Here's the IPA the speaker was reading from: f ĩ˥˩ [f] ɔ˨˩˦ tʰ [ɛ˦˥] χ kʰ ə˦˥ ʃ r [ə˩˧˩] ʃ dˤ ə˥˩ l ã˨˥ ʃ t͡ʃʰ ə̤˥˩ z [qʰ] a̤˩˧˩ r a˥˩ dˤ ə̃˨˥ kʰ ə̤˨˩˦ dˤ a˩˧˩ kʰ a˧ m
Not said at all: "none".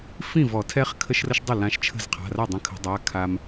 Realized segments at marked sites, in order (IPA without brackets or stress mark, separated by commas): v, ɛ˦˥, ə˦˥, qʰ